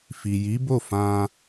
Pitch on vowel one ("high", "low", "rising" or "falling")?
low